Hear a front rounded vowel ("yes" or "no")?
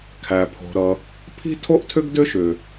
yes